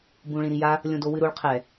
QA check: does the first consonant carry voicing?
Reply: yes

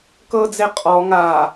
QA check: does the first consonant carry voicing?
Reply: no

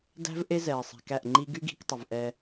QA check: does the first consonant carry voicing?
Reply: yes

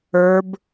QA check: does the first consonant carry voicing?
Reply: yes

